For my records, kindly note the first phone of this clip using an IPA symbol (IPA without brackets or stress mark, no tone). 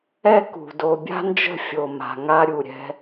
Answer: ɛ